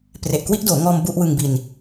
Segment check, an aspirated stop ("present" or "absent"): absent